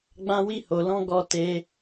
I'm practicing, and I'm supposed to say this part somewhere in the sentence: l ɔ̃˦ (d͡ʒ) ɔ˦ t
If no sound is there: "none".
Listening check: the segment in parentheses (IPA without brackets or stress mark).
ɡ